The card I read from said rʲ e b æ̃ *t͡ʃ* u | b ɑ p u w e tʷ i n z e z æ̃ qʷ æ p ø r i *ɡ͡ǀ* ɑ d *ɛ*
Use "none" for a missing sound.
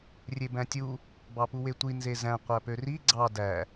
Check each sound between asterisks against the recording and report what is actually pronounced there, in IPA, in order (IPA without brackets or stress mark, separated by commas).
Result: tʲ, ɡ͡ǀ, æ